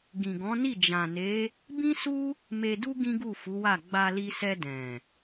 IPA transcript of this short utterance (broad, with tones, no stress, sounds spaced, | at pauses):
ɡ ĩ˨ ɡ ɔ̃˨˦ n i˦˨ d͡ʒ ã˨ n e˨˦ | b ĩ˦ s u˦ | m e˧ d u˦ ɡ ĩ˦ ɡ u˦˨ f u˨˦ w a˦˨ ɡ͡b a˧ l i˧ s ɛ˧ d ɛ̃˨